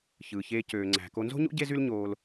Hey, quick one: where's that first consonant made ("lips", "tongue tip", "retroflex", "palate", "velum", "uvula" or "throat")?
palate